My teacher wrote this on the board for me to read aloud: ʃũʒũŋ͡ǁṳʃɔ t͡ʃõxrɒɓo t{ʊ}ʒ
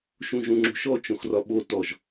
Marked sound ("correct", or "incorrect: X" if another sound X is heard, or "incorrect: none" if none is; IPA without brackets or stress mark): incorrect: ɔ